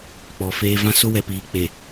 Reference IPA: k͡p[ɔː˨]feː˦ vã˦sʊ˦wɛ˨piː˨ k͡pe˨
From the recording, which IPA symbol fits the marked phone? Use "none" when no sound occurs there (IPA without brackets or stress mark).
ɔ˨